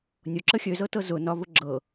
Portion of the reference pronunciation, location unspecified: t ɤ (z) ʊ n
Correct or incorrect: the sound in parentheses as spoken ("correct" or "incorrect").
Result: correct